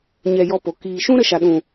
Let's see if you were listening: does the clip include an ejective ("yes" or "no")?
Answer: no